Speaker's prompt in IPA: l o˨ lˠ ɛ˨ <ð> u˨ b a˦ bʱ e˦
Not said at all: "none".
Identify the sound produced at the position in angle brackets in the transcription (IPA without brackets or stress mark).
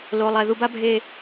ð